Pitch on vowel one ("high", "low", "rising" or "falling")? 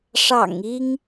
low